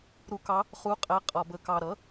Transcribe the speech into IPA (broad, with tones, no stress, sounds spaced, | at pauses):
ɾ u˧˥ k ɑ˧˥ | χ u˧˥ qʼ æ˧˥ qʼ ɒ˧ b ə˧ k ɑ˧ ɾ ʌ˩˥